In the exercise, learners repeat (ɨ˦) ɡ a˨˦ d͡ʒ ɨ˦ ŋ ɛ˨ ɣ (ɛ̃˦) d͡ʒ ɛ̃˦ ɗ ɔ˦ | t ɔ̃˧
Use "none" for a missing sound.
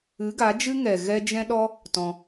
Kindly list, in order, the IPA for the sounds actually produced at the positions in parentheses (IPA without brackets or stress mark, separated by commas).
ɨ˨˦, ɛ˦